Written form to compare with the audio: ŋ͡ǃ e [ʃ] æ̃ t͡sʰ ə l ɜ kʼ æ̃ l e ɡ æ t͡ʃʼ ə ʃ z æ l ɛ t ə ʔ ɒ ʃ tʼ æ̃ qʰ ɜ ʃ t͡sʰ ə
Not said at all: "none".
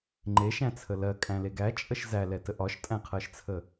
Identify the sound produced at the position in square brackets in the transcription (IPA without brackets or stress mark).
ʃ